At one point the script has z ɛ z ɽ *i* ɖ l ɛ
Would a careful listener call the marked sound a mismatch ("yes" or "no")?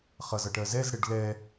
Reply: yes